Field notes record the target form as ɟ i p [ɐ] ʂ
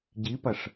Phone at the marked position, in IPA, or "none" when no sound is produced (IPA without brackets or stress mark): ɐ